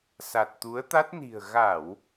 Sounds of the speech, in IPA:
s a˨˩ t̚ t̪ u˨˦ ə̯ t̪ a˦˥ t̚ n i̤˨˩ ə̯ ɣ a˧˩˨ w

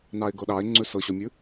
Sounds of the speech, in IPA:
n ɑ e̯ ɡ ɤ ɗ ɑ e̯ ŋ͡ǀ ʉ s ɤ ɕ ɔ mʲ ʉ

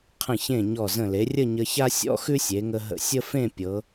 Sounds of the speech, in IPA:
qʰ ə̃˧˩ ç ẽ˧˩ ɲ ɔ˧˩ z ə̃˧˩ l e˩˧ rʲ ə˥˧ ɲ ə˧ ç a˥ sʲ ɔ̰˥ x ʉ˥ sʲ e˩˧ ŋ ə˧ ɦ ə̰˧ sʲ ə˥ f ẽ˥˧ pʲ ɤ˩˧

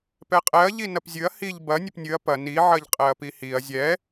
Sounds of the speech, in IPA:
p ɛ qʼ ɛ ɐ̯ ʎ i n ɐ p zʲ ɨ ɐ̯ h i ʎ b ɐ nʲ ɘ p nʲ ɨ ɐ̯ p ɐ n i ʕ ɐ ʎ qʼ ɛ ɐ̯ p i h i ɐ̯ zʲ ɛ

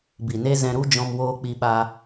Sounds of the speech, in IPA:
b i˨ n e˦ z ɛ̃˧ ɾ u˦ d͡ʒ ɔ̃˧ m w oː˧ k͡p i˧ ɓ a˧

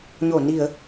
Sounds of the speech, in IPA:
ɲ o˧˩ n i˧˩˨ ə̯

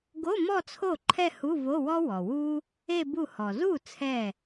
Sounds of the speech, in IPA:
ɡ o˧˥˧ m ɔ˥˧ t͡sʰ o˥˩ ǃʰ ɛ˥˧ h u˧˥˧ v o˧˥˧ w ɔ˥ w ɔ˩ w u˥ | e˥˧ b u˥˩ h ɔ˩ z u˥˩ t͡sʰ ɛ˥˩

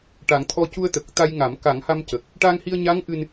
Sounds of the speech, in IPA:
ʈ a˨˩˦ ŋ t̪ʰ ɔ˧ c u˧ ə̯ t̪ ə˨˩ k̚ t̪ a˧ j ŋ a˨˩˦ m k a˨˩˦ ŋ h a˧ m c ə˨˩ k̚ | ʈ a˧ ŋ h i˧ ə̯ ɲ a˧˥ ŋ ʔ ɨ˧ n

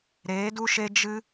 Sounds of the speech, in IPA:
ɾ eː˨˦ d u˦ ʃ e˦ d͡ʒ ɨ˦

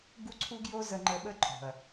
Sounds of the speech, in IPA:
ɡ u˦ ǀʰ u˦ ɡ j o˦ z ə˧ ŋ͡ǃ ə˧ ɓ ə˦ ǃʼ o̤˨ ɐ̯

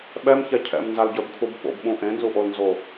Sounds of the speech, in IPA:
ɓ ɛ m ç ɛ cʰ ɛ̰ m n z a l ɟ ə˞ b kʰ u b ɓ o̰ b ɓ ũ ʔ ẽ n z u ʔ o l n z o

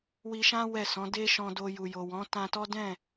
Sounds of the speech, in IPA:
w i˧ ʃ ã˦ w ɛ˦˨ s ɔ̃˨˦ d e˦ ʃ ɔ̃˧ d o˧ j u˨ j o˨ w ɔ̃˨˦ t ã˧ t ɔ˦ d ɛ̃˦˨

